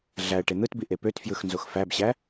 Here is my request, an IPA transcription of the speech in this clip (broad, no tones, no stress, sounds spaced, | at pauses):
ɮ æ ə̯ ʈ e n̪ ɯ t b i ʔ e p ø t f j ɯ x n z o x f æ b ɕ æ